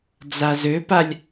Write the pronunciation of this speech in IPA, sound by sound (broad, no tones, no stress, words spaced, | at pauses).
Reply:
d͡zazøpalʲ